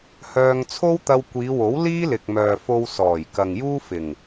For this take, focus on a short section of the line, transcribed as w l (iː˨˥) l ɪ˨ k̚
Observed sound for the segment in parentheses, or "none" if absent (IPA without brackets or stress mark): iː˥